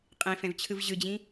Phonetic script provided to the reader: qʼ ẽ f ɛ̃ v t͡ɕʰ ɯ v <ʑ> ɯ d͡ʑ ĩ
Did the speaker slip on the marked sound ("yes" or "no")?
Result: no